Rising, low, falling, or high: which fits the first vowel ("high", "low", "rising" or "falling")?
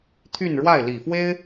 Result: falling